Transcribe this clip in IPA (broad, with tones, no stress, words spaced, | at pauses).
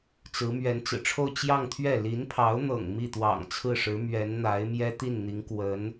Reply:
t͡sɹ̩˧˥ mɥɛ˧˥nt͡sɹ̩˨˩ʈ͡ʂʰo˥˧ʊ̯ t͡ɕjɑ˥˧ŋt̪ʰɥɛ˥˩ li˧˥npʰɑ˧˥ʊ̯n̪ɤ̰˨˩ŋ mi˥˩t̪wɑ̰˨˩ŋt͡sʰɹ̩˥˩ʂɻ̩˧˥ mɥɛ˧˥nn̪a˧˥ɪ̯mjɛ˥ t̪i˥˩nn̪i˧˥ŋkwə˧˥n